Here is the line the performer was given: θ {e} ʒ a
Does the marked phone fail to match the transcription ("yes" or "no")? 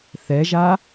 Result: yes